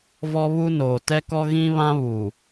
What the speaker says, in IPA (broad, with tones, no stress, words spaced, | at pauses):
vɔ˦βu˦noː˨ tɛ˦kɔ˦ ɣĩ˦βã˦βuː˨